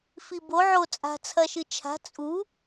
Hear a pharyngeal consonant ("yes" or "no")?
yes